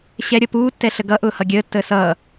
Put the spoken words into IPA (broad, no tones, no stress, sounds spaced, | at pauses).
ɕ ɛ ɾʲ ʌ p uː tː ɛ ɬ ə ɡ ʌ ʔ ʊː h ʌ ɡʲ əː tː əː s ʌː